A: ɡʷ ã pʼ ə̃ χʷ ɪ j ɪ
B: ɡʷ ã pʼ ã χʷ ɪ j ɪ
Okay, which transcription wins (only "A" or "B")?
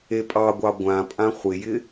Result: B